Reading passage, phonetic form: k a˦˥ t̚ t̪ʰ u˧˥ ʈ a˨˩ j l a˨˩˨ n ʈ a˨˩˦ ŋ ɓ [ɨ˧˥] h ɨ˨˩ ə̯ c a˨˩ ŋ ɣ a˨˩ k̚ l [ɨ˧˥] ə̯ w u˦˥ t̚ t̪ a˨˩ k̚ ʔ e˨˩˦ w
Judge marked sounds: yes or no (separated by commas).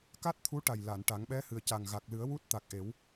no, no